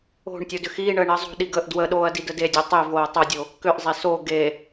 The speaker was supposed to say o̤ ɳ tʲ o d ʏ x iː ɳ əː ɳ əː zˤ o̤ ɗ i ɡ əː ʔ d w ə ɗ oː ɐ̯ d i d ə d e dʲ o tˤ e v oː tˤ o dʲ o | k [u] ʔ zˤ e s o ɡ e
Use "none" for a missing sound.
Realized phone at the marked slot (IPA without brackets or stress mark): ʏ